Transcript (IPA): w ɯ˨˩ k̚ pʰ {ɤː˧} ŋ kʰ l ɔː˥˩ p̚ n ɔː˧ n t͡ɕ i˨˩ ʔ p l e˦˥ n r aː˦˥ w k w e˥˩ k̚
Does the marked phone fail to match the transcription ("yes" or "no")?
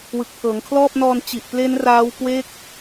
yes